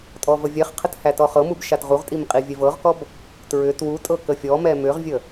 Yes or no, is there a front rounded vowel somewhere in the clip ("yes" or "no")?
yes